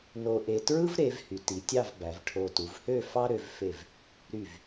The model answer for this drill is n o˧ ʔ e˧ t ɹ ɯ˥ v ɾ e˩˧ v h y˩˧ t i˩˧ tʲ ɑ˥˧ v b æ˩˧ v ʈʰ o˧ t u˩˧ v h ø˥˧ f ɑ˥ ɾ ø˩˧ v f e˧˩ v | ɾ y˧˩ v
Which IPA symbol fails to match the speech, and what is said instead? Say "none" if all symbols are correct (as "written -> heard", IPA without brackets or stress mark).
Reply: none